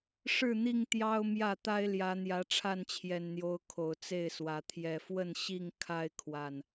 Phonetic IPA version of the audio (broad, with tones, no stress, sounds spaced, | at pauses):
ʂ ɻ̩˥˨ n̪ i˥˨ ŋ t̪ j ɑ˦ ʊ̯ m j ä˥˨ t̪ a˦ ɪ̯ l j ä˨˦ n̪ j ä˨˦ ʈ͡ʂʰ a˥˨ n t͡ɕʰ j ɛ˨˩ n n̪ j o˨˦ ʊ̯ kʰ o˨˩ ʊ̯ t͡s e˥˨ ɪ̯ s w ä˨˦ t̪ʰ j ɛ˨˩ f w ə˥˨ n ɕ i˥˨ ŋ kʰ a˦ ɪ̯ kʰ w a˨˩ n